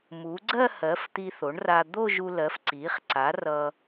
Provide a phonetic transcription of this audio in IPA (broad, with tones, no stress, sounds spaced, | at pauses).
m u˩˥ ɡ͡ǀ ɜ˥˧ h ɜ˩˥ f t̪ i˧ θ o˩˥ ɳ r a˧ d̪ o˥˧ ʒ u˧ l ɜ˩˥ f ǀ i˩˥ χ ǀ a˩˥ r ʌ˧